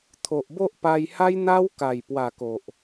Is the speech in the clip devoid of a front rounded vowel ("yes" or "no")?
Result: yes